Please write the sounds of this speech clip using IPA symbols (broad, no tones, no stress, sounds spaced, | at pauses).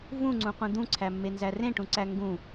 v ũ ŋ͡ǀ ũ qʷ ĩ d̪ ũ ǀʰ æ mː e n z æ r ẽ ʈ ũ ǀ æ ŋ ɡ ũ